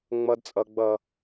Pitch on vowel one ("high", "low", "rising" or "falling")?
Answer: high